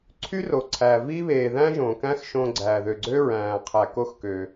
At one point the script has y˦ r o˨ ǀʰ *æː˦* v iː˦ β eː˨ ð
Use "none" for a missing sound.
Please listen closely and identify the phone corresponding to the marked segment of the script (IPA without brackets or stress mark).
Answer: æː˨